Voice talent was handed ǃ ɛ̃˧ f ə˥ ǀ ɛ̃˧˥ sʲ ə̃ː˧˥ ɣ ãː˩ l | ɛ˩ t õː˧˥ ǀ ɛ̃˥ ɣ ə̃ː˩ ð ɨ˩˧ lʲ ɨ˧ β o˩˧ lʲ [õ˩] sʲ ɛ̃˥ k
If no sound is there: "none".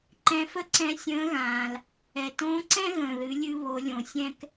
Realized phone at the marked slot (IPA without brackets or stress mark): õ˩